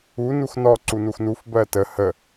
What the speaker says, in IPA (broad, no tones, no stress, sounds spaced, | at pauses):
u n u x n ɔ ǀ u n u x n u f b ɜ t ə h ə